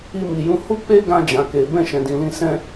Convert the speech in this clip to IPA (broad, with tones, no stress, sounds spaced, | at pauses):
i˧ m i˨ j ũ˧ h u˦ k͡p e˦ ɡ ã˧ d͡ʒ ã˨ k e˨ b ɛ̃˧ ʃ ɛ̃˨ d ĩ˨ l ĩ˧ s ɛ̃˧